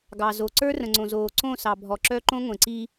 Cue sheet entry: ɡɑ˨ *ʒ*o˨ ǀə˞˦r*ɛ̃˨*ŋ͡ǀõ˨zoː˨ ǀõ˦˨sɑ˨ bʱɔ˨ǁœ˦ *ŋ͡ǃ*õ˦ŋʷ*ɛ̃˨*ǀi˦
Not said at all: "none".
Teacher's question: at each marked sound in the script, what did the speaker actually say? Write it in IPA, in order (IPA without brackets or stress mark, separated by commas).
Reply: z, ə̃˨, ǃ, ẽ˨